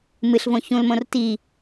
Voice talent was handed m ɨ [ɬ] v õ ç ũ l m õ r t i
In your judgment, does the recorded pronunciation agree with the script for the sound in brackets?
yes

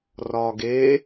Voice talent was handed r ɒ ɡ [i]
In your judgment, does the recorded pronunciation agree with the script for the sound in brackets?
no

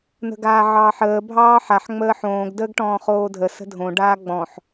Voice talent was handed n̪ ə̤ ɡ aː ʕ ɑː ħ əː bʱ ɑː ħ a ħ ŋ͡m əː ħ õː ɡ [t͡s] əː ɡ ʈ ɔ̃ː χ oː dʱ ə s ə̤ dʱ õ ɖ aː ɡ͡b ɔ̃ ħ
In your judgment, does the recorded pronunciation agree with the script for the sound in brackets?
no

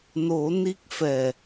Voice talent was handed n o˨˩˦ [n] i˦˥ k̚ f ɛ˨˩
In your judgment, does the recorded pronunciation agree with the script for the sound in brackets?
yes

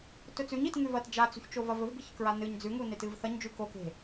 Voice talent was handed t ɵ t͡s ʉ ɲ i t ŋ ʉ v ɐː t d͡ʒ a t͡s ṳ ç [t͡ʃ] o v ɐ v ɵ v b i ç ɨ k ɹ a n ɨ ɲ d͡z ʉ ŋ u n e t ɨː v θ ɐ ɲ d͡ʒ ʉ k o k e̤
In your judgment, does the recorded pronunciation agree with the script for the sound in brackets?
yes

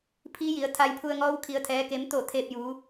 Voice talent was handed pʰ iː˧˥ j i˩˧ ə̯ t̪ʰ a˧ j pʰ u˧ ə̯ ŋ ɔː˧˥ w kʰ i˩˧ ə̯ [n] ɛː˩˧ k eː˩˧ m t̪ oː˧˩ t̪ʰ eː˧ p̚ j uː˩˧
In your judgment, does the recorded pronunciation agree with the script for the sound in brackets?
no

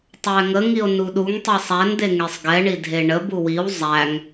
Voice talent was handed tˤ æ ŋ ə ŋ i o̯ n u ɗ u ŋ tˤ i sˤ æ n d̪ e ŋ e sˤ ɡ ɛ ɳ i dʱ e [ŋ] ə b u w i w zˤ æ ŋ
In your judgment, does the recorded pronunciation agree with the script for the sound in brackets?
no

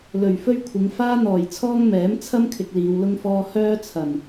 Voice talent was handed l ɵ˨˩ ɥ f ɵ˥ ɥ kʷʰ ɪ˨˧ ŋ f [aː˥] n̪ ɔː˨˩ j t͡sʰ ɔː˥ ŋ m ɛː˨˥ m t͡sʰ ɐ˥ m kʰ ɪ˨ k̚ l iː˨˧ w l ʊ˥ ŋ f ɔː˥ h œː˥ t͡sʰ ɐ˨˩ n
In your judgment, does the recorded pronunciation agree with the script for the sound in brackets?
yes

